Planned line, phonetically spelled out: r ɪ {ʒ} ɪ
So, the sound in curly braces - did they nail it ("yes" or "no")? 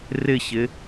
no